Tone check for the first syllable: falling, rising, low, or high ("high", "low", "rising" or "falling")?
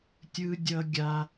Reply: high